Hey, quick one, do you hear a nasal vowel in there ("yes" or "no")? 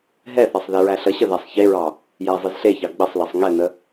no